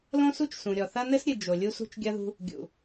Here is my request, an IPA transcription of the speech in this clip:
lõ˦su˦t͡ʃ sũ˨ ɾʲɔ˨θɐ˦ nɘ˦sɾʲɨ˨ d͡ʒo˨ lʲu˦sṳ˦t͡ʃɡʲɐ˦ðṳ˦ | ɡʲṵ˨

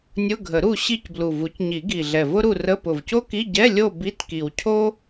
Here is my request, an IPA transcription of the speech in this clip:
nʲʊ˧˥˧ɡʱə˨˩˦ɾu˦˨ ɕi˦˨cblu˨˩ vu˩˥cɲi˨˩˦ɡi˨˩ ɮɛ˨˩vʊ˥ɾu˦˨rə˧˥˧ pʊ˨˩vco˥ki˧˥˧ ɟɛ˧˥˧lʲo˦˨ bi˧˥˧tki˨˩w cʰo˥

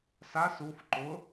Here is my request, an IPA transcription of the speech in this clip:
sas uf ǃʊ

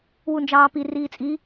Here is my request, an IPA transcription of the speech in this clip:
wund͡ʒɑːpi riːt͡sʼi

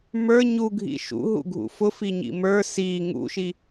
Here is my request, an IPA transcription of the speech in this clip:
mə˞ ɲuɡʱḭ ʃṵɦṵɡʱṵ fʊfiɲḭ mə˞ si ŋṵʃi

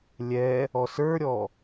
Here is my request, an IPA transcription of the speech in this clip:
lʲɛ | ɔsə˞ɾʲɔ

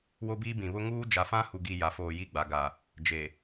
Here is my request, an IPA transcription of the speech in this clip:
wo˦biː˦bĩ˨ βʊ˦ ŋuː˦ d͡ʒa˨fã˦hu˨ɡi˨ ja˨foː˨ ji˦˨ɡ͡ba˨ɡa˨ | d͡ʒe˨

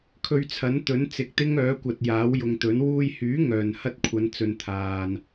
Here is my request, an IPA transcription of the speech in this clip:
kʰɵ˧ɥt͡sʰɐ˨˥nt̪ɵ˨˥n t͡sɪ˨k̚t̪ɪ˥ŋœː˨˥kʷɐ˨t̚ jaː˨˥wjʊ˨ŋt̪ɵ˨˥n wuː˧jhyː˨˥ ŋœː˨n hɐ˥t̚kʷʰɐ˨˧nt͡sɵ˨n t̪ʰaː˨n

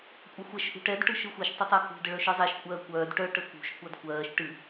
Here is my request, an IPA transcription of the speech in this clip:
kʷʼəxʷɛʃ ʔṳʈɛd ʈɯʃɯxʷiʃ tˤətˤɜkṳ dəɭœʃɯzˤɛʃ kʷʼɜːkʷœːd ʈœ ʈəkṳʃ kʷadkʷɜːʃ ʈɨ

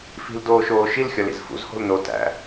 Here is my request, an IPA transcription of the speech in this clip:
fi̤ldoːʃoː ʃilxʲɒlḭz fṵzho̤l no tæ̰

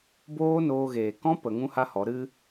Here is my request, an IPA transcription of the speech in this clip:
boː˦noː˧ɣeː˨ kɔ̃˦pə˨ ŋũ˦ha˦hɔ˨˦ ɾɨ˦

